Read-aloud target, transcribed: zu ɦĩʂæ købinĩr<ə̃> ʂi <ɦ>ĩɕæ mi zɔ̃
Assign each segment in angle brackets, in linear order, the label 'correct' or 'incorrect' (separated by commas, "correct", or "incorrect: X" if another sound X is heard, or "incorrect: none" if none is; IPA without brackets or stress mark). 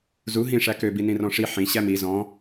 incorrect: ɔ̃, incorrect: ħ